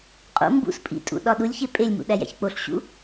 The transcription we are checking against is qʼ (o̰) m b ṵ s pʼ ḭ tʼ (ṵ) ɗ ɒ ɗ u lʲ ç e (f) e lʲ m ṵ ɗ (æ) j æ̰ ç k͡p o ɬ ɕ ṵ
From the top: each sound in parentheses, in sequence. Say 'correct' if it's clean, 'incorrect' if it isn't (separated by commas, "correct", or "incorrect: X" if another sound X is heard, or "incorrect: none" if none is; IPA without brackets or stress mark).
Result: correct, correct, incorrect: pʼ, correct